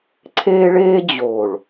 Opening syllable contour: high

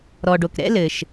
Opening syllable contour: low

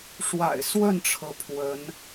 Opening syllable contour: low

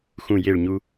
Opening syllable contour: falling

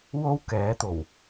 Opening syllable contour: high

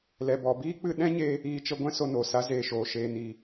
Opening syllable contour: low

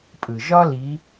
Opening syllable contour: low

